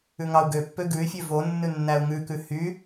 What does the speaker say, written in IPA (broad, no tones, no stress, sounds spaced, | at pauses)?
ʉ ŋ ɑ u̯ ɡ ø pː ø ɡ ʉ y̯ fʲ ø v o nː ʉ nː æ u̯ ŋ ʉ k ʉ h y